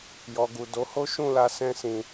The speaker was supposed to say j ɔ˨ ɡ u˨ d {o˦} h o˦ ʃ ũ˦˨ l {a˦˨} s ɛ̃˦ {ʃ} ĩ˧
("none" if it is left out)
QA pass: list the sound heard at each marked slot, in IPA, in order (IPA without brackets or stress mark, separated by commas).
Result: o˨˦, a˧, s